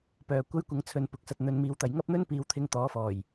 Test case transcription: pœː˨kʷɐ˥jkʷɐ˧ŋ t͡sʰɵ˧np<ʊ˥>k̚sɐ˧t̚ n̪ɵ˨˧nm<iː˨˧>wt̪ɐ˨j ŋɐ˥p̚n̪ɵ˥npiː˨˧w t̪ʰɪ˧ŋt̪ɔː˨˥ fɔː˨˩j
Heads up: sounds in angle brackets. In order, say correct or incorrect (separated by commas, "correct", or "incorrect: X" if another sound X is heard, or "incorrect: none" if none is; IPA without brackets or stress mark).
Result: incorrect: ʊ˨˥, correct